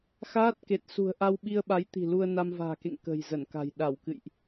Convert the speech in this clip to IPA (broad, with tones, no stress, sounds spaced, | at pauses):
x aː˦˥ t̚ k e˨˩ t̚ s ṳ˨˩ ə̯ ʔ a˧ w ɓ i˧ ə̯ ɓ a˨˦ j t̪ i̤˨˩ l u˧ ə̯ n a˧ m v a̤ː˨˩ k ḛ˧˨ ŋ k ə̤˨˩ j z ə˧˩ n k a̤˨˩ j ɗ a˧˩ w k ɨ̰˧˨ j ʔ